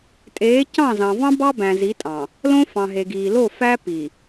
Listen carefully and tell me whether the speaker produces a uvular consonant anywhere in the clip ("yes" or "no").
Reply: no